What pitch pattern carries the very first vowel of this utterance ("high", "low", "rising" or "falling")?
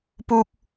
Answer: high